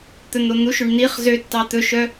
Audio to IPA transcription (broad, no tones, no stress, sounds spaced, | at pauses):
t̪ ɵ n̪ o n̪ u ʃ ø ɳ n̪ i χ z ø tː ɑ t̪ ɵ ʃ œ